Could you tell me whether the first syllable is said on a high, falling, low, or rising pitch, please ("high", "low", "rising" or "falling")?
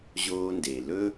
high